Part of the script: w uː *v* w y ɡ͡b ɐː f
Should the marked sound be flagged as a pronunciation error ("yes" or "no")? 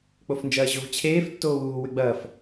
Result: yes